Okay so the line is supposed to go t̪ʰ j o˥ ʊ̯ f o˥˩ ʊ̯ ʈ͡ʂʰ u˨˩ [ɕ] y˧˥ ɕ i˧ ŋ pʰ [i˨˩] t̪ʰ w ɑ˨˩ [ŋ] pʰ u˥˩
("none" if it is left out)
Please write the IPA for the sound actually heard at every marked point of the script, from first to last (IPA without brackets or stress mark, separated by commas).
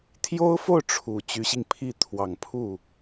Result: t͡ɕ, i˥˩, ŋ